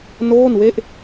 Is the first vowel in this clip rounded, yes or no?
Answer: yes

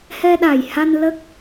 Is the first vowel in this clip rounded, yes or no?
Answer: no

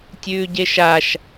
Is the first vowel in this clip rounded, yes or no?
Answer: yes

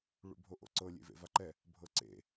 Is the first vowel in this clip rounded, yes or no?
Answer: yes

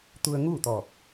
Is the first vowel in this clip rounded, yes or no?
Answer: yes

